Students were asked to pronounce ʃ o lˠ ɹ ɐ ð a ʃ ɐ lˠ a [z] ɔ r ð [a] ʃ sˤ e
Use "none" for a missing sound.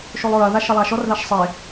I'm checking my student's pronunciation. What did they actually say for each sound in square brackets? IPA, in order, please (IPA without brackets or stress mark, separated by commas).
ʃ, a